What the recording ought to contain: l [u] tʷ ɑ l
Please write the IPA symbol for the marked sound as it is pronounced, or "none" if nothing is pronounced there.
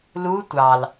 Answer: u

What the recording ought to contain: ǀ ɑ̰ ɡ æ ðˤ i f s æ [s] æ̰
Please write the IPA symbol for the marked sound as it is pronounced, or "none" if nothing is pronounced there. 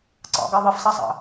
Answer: sˤ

